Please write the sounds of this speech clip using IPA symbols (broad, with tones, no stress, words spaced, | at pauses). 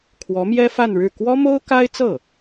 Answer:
kʰwɔ˧˥mjɛ˥ fa˥˧nɻɻ̩˥˩ kwɔ˥mo˥ʊ̯ka˥ɪ̯t͡sɤ˥˩